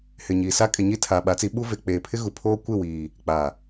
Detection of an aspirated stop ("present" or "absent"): present